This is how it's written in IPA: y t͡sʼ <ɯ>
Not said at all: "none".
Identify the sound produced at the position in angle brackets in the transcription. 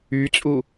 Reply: u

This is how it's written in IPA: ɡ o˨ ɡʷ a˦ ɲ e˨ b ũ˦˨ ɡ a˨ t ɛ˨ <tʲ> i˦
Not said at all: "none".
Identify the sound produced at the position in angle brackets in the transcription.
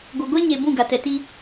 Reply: t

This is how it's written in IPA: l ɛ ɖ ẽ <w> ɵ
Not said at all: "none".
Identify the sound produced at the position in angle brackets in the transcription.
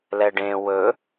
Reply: w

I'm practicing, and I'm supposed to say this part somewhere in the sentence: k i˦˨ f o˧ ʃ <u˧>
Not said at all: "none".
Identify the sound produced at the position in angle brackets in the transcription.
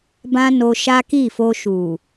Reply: u˨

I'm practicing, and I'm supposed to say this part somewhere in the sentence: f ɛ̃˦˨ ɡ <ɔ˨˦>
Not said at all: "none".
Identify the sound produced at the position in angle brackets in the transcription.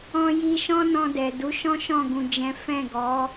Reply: ɔ˨˦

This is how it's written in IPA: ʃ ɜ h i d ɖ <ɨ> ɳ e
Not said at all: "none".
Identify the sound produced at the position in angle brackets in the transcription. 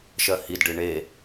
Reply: ɨ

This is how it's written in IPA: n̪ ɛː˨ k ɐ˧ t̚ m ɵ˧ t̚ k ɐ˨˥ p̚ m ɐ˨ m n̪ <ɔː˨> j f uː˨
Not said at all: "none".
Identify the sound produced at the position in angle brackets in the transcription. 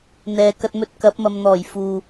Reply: ɔː˨˩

